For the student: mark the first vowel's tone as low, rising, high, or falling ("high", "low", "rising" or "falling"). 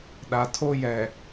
low